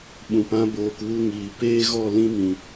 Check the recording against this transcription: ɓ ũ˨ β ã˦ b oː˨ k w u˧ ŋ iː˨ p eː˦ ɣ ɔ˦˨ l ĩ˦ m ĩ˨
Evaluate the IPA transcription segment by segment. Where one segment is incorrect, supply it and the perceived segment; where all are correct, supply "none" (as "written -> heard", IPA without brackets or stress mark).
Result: β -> p